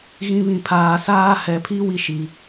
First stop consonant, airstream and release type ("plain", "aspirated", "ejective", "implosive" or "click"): aspirated